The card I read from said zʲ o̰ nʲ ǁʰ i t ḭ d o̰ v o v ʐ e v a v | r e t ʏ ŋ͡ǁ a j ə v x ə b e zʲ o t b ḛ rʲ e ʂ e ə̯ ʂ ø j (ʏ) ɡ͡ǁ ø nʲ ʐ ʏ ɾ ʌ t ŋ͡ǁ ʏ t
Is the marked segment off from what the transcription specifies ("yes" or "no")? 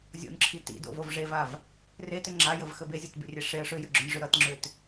no